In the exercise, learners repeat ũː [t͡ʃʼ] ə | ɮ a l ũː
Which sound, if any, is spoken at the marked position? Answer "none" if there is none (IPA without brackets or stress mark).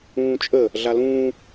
t͡ʃʼ